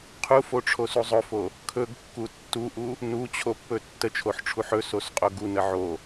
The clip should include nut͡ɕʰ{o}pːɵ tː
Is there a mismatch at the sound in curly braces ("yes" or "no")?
no